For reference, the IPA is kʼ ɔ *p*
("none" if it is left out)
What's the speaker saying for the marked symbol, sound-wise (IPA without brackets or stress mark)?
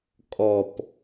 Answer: p